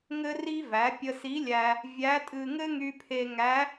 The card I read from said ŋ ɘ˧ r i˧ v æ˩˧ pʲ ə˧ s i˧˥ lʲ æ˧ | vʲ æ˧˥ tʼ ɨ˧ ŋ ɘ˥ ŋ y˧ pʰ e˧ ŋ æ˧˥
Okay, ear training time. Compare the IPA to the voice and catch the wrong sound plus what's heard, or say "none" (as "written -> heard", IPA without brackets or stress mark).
none